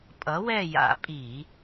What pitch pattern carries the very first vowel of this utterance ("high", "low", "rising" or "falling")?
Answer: rising